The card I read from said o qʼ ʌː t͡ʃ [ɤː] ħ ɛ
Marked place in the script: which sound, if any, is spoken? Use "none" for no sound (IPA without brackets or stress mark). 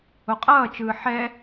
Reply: ɯː